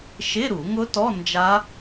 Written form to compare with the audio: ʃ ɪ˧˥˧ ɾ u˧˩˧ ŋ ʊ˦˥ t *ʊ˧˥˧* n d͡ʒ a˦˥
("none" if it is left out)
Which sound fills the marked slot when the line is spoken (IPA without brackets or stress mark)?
ɔ˧˥˧